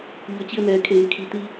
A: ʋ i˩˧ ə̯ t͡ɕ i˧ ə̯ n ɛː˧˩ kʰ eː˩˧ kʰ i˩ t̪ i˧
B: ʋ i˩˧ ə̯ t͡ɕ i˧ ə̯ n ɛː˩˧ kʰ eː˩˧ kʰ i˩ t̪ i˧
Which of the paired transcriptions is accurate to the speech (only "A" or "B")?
B